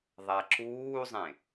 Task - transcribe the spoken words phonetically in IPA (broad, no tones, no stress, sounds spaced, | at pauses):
ðˤ a ǁ uː zˤ ẽ